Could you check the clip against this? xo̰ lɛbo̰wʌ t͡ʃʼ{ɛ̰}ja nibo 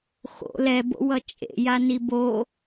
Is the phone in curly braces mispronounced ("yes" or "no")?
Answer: yes